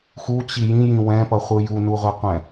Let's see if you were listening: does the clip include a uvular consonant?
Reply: yes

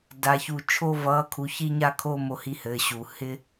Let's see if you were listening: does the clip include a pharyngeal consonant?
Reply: no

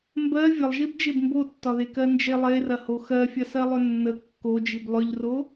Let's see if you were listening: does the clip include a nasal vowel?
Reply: no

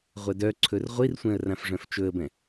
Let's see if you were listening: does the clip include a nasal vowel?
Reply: yes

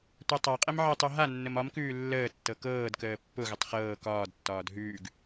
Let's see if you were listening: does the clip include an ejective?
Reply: yes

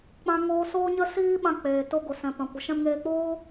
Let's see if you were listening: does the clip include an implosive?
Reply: yes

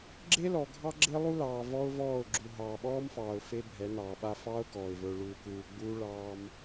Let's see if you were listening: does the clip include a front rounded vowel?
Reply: no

